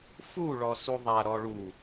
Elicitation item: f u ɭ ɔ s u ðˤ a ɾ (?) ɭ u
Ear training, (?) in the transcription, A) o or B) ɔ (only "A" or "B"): B